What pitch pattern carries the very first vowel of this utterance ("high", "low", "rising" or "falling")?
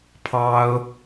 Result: high